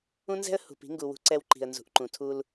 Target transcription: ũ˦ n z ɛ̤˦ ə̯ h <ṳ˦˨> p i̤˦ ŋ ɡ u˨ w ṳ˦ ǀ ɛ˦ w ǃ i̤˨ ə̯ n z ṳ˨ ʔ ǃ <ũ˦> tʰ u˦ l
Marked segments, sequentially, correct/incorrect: incorrect, incorrect

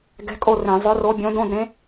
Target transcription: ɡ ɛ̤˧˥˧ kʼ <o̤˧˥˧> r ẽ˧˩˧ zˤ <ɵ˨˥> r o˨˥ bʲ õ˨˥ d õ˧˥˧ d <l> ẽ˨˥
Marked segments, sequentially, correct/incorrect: incorrect, incorrect, incorrect

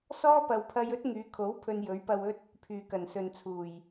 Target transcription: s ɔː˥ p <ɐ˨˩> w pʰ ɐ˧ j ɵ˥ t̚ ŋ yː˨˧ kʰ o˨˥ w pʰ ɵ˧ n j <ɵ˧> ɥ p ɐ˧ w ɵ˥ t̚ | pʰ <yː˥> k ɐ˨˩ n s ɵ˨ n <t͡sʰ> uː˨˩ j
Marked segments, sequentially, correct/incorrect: incorrect, incorrect, incorrect, correct

